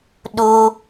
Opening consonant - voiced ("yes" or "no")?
yes